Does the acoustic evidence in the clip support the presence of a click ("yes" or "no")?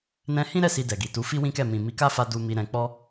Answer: no